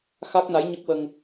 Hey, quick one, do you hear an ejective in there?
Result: no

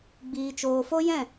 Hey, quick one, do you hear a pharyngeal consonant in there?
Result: no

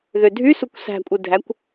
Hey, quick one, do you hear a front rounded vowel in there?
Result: yes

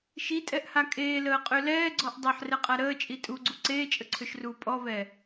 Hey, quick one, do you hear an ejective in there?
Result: yes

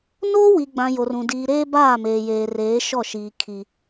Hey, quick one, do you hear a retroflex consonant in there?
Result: no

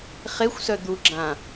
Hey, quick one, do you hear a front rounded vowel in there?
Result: yes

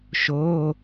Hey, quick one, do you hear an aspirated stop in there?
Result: no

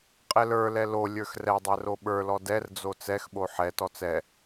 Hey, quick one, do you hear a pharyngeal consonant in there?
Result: yes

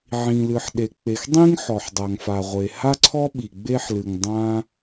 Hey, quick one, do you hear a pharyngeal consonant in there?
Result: yes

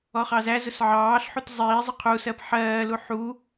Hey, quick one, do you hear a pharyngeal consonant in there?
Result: yes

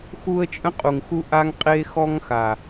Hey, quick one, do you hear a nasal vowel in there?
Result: yes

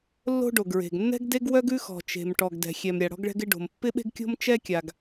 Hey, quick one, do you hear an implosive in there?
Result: yes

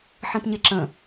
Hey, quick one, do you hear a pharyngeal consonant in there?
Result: yes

